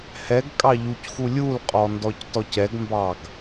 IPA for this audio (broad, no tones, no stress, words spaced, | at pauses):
hɛɡ kʼɑʎucxu lʲulqʼɔ ndɔctɔcɛɡmbɑɡ